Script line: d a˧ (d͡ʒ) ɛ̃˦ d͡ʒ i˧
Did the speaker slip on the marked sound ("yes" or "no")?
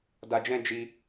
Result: no